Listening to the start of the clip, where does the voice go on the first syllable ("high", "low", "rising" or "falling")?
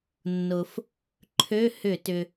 low